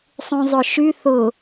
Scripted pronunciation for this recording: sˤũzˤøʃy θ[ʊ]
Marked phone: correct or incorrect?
correct